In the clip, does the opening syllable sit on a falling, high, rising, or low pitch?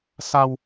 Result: high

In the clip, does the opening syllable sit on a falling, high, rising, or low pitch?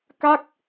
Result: falling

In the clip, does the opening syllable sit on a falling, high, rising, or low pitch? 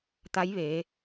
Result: rising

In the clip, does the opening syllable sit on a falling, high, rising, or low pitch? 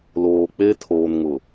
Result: low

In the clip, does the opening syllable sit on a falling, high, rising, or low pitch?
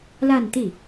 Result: falling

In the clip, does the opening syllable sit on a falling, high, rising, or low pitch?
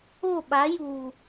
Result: falling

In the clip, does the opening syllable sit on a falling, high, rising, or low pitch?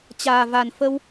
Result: low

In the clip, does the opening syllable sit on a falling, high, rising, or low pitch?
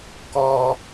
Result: high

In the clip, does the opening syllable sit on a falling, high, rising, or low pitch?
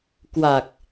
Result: low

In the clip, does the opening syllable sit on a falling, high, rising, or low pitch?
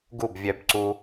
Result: falling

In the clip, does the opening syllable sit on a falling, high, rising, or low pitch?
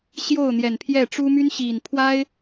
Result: falling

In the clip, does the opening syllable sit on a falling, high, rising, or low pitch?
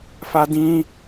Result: high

